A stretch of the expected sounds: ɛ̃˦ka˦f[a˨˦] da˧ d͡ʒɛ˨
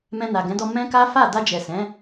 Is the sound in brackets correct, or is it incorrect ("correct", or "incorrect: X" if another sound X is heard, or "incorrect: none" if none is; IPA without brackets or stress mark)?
incorrect: a˦˨